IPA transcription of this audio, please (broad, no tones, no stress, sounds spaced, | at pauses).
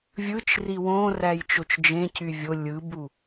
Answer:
vʲ ɯ t͡ʃ r i w õ r æ j t͡ʃ o t͡ʃ d͡ʒ ẽ c y vʲ o lʲ ɯ b u